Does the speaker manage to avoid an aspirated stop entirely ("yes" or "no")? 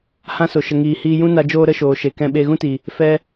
yes